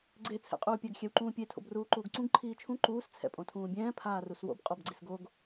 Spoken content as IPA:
ɡ͡ǀ e t͡sʰ ɛ̰ qʼ uː pʲ a ɡ xʲ ɛ w ǃ ũː pʲ e tʰ o̰ b r uː ǃ uː ɡ ǀ ũ ɡ ǃʰ iː t͡ʃʰ ũ ǃ uː s t͡sʰ ɛ̰ pʼ õ tʰ ũː bʲ ɛ̃ː pʰ aː r u s w o̰ b qʼ ɔ b ɡ͡ǀ i s ɡ o ɡ

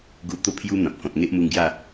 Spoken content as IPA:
ɡ u˧ t̪ o˥˧ pʰ j u˦ n̪ ã˨ p̚ k ɔ̃˨ t̚ ŋ e˦ ʔ m u˧ ŋ ɡ j a˥˧

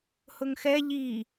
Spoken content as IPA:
h ʊ ŋ x ɛ ʎ i

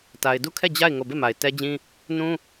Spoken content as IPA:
t a˨ ɪ̯ d u˦˨ kʰ ɛ˦˨ d͡ʑ a˦˨ ɪ̯ ŋ o˦˨ b e˦˨ m a˨ ɪ̯ t ɛ˦ d͡ʑ ĩ˦ | n ũ˦

